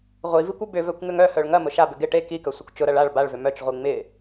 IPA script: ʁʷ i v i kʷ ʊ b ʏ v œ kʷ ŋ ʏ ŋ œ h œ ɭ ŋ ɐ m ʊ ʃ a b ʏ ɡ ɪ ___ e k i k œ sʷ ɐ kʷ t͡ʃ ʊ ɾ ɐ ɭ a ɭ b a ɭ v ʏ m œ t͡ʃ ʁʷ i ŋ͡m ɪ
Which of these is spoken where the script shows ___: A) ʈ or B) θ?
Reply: A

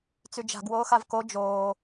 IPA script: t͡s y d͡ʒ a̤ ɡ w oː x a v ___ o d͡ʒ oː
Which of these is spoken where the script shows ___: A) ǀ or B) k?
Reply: B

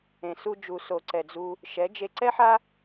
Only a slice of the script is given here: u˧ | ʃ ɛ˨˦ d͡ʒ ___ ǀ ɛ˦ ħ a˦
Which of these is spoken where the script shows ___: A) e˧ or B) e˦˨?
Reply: A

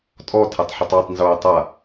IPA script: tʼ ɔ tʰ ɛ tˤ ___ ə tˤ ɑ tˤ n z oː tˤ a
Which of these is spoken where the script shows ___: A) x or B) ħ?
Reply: B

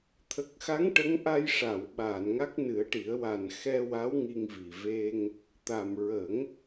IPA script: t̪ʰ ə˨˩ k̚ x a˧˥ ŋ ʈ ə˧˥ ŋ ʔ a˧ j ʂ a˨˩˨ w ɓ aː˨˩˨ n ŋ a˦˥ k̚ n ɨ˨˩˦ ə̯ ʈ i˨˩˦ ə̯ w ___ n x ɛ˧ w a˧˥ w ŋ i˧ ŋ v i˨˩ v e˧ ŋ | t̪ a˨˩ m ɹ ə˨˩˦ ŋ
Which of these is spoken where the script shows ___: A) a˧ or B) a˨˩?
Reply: B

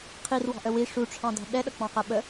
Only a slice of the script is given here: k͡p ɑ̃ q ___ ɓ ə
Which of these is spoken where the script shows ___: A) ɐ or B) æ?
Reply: B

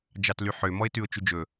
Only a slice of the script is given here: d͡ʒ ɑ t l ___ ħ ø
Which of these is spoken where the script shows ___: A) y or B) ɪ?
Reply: A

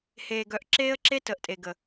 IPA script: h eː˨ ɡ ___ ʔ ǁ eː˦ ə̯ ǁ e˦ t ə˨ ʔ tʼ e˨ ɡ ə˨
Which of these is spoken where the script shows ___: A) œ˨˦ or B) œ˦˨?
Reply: A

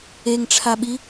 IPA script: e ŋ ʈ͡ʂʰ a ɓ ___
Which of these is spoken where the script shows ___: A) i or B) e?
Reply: A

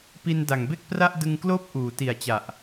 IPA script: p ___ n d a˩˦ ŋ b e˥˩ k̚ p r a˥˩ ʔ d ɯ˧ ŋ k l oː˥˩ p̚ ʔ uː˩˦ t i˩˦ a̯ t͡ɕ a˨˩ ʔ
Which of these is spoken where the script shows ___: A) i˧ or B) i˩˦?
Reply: A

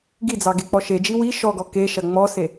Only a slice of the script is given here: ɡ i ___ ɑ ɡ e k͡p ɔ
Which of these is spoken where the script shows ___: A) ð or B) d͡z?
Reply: B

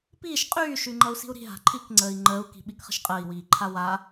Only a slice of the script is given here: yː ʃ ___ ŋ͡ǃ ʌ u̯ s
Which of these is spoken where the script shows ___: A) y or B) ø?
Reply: A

